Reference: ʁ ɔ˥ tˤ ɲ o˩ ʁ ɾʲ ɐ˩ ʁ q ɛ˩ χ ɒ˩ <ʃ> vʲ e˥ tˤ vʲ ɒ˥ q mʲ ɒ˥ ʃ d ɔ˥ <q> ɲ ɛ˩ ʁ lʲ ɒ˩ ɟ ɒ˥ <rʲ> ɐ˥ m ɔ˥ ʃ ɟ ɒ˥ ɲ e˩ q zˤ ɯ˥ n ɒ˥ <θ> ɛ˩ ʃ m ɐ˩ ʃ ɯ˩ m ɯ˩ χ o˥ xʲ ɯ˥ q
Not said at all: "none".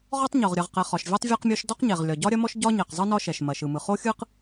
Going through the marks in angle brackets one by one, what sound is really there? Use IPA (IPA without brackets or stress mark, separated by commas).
ʃ, q, ɾʲ, ʃ